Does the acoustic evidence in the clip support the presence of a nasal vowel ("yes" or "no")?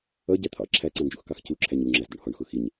yes